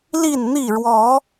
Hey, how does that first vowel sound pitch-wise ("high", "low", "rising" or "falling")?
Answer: falling